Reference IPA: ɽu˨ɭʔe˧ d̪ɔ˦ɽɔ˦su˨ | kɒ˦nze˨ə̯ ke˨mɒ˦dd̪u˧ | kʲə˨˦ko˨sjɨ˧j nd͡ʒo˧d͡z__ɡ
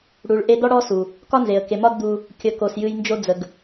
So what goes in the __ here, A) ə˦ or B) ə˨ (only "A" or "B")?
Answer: B